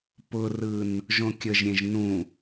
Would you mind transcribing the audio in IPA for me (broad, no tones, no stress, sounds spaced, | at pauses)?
p ʊ r ɯ n | ʒ õ kʲ ə ʒ ɾʲ ẽ ʒ n ũ